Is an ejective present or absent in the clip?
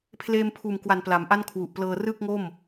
absent